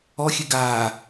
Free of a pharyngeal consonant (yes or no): yes